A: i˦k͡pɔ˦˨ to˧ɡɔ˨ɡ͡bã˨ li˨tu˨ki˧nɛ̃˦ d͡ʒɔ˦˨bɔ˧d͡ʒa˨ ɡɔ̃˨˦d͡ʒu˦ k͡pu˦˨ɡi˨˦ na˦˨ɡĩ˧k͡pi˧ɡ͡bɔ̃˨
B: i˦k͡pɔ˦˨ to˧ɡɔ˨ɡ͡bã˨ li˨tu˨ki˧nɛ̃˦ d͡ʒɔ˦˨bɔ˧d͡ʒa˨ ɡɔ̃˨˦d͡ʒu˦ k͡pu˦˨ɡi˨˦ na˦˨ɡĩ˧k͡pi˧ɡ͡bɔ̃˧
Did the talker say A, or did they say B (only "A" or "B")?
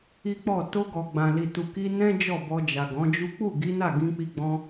B